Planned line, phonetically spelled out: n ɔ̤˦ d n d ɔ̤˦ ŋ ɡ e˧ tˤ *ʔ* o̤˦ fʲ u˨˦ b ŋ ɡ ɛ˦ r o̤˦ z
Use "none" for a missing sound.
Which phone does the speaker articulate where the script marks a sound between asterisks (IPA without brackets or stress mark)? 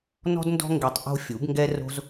ʔ